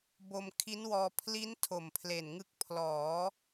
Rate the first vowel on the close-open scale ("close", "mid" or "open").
mid